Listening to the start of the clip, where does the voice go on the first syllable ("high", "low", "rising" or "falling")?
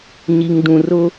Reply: low